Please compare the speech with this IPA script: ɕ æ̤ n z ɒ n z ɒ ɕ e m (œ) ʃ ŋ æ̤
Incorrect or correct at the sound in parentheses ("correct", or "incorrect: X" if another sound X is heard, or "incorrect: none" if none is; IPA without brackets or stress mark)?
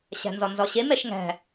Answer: incorrect: ɛ